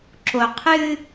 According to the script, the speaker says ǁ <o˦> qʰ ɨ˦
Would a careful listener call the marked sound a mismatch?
yes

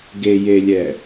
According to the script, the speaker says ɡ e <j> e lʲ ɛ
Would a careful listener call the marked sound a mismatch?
no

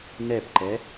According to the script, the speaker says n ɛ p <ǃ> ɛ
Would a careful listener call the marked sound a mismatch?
no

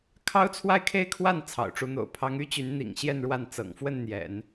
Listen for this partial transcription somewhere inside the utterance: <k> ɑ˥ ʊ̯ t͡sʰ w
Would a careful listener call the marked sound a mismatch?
yes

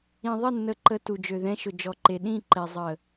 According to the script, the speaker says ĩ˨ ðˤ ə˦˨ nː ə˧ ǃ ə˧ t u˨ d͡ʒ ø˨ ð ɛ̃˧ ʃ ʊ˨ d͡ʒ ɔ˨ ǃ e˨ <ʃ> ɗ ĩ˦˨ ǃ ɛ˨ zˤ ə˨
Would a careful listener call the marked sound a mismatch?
yes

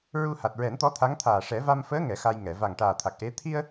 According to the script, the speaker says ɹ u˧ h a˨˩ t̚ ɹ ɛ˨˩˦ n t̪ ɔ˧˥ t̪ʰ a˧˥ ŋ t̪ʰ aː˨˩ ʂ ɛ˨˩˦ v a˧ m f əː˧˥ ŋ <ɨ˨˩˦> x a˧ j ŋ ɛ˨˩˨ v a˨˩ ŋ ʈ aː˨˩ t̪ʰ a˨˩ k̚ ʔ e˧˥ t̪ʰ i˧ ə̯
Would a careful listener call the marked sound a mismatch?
yes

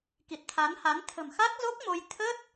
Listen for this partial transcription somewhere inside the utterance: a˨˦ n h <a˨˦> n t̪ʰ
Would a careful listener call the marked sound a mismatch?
no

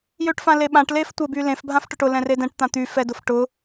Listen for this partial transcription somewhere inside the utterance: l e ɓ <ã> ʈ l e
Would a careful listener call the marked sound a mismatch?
no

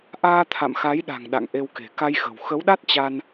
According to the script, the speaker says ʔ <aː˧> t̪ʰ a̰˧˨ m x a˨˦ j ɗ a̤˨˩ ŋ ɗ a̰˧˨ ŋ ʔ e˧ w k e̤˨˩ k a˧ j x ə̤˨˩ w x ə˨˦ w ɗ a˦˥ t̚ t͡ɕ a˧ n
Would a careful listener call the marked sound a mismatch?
no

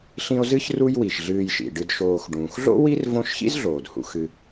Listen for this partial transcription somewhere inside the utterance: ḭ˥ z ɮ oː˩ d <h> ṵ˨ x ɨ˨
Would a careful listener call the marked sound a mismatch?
no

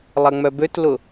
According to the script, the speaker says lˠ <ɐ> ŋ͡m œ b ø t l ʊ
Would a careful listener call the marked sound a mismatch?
no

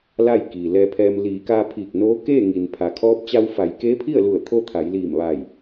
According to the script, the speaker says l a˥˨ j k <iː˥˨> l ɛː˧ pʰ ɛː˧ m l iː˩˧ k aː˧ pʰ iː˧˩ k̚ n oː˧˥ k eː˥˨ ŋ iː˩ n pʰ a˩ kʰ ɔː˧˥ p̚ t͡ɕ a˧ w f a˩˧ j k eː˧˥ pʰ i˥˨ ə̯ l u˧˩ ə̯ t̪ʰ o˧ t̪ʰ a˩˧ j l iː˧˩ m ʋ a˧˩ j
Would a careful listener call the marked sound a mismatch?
yes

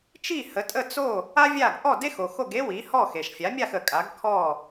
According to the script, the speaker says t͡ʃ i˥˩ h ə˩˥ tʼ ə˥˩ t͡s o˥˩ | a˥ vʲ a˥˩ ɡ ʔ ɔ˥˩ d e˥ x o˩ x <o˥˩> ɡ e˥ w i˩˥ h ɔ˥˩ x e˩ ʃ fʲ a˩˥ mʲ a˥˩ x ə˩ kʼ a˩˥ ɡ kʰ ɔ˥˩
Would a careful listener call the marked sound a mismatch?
no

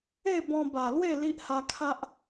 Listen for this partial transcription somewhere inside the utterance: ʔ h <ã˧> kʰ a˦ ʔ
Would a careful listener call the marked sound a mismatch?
yes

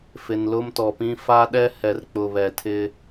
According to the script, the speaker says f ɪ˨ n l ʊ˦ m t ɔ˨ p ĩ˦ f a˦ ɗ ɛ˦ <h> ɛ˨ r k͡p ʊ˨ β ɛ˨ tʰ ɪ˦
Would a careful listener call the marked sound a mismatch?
no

